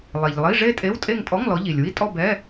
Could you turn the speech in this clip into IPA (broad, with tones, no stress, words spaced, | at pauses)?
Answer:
lˠe˩ʎ lˠi˧˥˧ ʐe˥˧tʼe˧˥˧wtʼe˥˧ŋ tʼɔ˧˥˧ŋlɔ˨˦ʎi˩lʲ wi˥˩tʼɔ˥˧bɛ˧˥˧